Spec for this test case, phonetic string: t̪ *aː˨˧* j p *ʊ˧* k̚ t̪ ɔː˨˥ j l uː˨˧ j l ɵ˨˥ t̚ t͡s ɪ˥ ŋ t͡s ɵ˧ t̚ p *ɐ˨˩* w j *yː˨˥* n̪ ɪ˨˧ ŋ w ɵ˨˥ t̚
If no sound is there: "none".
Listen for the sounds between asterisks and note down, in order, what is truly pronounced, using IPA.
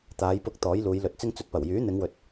aː˨˧, ʊ˧, ɐ˨˩, yː˨˥

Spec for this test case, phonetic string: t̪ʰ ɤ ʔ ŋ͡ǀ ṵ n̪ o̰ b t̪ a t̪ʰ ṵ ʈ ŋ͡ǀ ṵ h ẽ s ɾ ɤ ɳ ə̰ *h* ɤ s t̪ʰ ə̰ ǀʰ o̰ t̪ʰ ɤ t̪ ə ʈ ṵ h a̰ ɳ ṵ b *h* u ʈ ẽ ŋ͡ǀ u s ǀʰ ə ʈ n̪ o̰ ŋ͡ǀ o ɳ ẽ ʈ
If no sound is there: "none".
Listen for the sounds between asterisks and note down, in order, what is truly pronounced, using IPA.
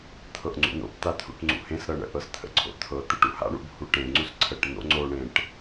ʔ, h

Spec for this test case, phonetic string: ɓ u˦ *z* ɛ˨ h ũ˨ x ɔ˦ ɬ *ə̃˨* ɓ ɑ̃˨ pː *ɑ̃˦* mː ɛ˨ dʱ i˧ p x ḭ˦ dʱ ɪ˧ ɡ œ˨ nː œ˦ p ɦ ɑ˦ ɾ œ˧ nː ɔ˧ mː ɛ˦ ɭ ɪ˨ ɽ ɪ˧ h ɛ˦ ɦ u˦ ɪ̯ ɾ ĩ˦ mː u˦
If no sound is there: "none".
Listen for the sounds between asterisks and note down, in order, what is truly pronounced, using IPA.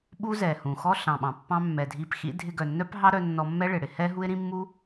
z, ɑ̃˨, ɑ̃˦

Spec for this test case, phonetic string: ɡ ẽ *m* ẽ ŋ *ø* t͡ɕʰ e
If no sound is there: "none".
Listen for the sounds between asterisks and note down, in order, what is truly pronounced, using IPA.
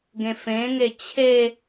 f, e

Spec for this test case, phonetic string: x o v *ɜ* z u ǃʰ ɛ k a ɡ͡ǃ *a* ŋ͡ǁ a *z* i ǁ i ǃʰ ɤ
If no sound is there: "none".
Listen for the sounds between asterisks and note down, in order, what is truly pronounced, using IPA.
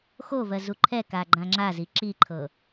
ɜ, ã, z

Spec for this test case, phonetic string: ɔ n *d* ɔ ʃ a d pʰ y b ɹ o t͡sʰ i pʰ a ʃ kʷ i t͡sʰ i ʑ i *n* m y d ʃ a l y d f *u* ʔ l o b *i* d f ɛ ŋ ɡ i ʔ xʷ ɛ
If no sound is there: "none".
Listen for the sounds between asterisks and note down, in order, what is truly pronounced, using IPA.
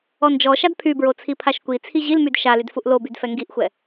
d͡ʒ, l, u, y

